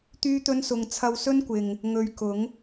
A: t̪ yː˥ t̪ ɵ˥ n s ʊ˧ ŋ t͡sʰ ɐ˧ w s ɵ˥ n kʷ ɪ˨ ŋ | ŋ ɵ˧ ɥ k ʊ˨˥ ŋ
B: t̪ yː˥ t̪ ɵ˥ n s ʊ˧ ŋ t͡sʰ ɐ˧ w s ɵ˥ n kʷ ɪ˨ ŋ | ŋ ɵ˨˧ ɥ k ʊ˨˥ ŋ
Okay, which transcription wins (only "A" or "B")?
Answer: B